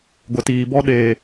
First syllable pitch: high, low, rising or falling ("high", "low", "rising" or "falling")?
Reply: low